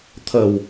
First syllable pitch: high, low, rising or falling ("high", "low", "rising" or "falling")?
low